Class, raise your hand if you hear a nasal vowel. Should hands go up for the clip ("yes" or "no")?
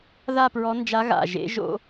no